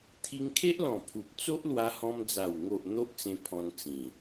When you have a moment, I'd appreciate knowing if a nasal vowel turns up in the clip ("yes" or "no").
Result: yes